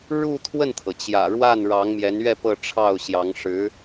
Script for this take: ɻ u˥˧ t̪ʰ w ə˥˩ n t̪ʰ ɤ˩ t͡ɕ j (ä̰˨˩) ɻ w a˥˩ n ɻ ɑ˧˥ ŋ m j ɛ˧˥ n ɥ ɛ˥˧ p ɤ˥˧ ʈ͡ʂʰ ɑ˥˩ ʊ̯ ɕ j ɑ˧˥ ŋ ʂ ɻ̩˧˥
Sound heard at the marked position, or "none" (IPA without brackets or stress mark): ä̰˨˩